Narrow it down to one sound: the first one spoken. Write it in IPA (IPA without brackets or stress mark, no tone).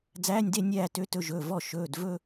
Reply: d͡z